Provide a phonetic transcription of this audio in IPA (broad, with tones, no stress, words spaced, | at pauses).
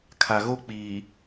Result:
kʰa˨ɣo˦k͡piː˨